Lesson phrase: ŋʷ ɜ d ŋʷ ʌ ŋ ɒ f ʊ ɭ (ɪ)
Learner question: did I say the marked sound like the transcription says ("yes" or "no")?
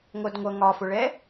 no